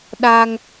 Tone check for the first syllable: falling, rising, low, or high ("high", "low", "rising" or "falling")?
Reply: high